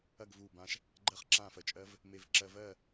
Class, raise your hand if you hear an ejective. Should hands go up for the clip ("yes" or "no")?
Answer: yes